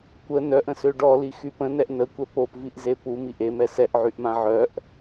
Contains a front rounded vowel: yes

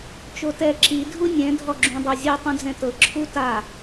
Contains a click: yes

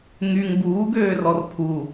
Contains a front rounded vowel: yes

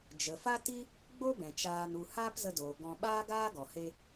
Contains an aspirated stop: no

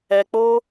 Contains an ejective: no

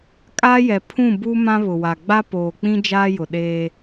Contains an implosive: yes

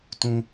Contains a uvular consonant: no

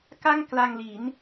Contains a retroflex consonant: no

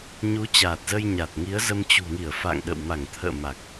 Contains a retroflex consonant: no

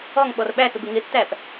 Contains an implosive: yes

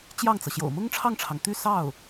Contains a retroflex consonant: yes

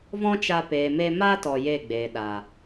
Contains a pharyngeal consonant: no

